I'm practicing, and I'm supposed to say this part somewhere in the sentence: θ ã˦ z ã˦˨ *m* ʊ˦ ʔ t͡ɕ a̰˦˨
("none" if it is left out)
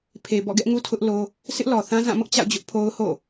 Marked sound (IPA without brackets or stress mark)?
m